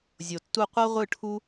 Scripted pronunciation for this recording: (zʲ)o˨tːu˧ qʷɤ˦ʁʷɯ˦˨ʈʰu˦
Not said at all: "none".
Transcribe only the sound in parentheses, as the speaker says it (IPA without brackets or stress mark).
zʲ